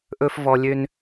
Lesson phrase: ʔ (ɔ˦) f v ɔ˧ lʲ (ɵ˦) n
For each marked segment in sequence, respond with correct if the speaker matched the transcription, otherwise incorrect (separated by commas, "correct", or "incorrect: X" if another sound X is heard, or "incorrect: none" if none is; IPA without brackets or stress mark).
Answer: incorrect: ɵ˦, incorrect: ø˦